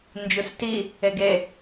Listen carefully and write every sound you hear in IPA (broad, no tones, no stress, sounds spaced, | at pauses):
n d͡ʒ u s t i | e ɡ e